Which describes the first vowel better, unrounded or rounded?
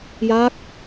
unrounded